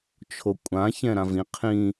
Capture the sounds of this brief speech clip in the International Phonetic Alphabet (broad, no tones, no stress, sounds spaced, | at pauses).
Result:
t͡ʃʰ o kʷʼ ã ç ɛ̃ ɾ ã v ĩ qʰ ĩ